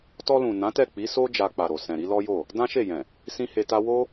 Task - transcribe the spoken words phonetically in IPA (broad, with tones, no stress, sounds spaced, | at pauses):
t ɔ˧ l ũ˨ n ã˨˦ t ɛ˦˨ k͡p i˨˦ s o˦ d͡ʒ a˧ k͡p a˨ ɾ o˨ s ɛ̃˨ ɾ i˨˦ l ɔ˦ j o˦˨ | d ã˦ ʃ e˦˨ j ɛ̃˨ | s ĩ˦ h e˧ t a˦ w o˦